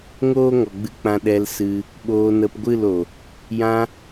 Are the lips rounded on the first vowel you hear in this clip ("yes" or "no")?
yes